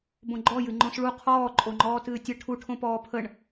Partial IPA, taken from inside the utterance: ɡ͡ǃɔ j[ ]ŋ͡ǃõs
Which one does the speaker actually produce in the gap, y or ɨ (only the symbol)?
ɨ